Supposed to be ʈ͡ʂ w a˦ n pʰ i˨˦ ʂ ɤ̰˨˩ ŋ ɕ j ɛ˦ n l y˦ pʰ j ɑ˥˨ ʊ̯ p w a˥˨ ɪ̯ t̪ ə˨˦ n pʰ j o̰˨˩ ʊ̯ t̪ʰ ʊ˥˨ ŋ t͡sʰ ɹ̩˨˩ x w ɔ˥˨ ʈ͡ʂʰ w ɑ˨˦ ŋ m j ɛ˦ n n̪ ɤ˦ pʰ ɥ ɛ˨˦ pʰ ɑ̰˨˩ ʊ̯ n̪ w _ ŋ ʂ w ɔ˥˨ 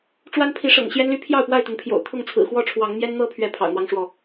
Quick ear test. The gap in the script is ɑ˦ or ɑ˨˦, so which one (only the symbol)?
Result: ɑ˦